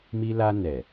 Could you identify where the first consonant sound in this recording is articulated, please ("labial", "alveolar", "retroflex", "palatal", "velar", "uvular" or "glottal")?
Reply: labial